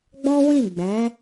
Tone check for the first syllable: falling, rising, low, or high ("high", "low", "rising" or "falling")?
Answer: high